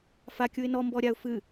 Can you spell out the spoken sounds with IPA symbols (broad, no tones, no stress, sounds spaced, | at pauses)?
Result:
f a kʲ u ɪ̯ n ɔ m b ɔ ɾʲ a ʊ̯ f ɨ